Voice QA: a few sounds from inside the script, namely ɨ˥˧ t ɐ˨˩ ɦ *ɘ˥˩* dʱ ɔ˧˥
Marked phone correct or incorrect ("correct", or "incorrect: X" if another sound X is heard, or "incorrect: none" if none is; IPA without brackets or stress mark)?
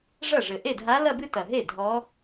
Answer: incorrect: e˥˩